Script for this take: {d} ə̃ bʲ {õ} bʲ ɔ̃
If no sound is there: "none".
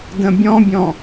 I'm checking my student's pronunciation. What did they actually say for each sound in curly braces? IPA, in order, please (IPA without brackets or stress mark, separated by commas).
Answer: d, ɔ̃